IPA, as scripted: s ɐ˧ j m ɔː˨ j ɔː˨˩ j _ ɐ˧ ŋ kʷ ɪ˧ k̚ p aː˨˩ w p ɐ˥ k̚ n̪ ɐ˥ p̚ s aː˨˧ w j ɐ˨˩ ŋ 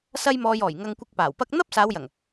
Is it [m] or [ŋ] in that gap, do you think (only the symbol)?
ŋ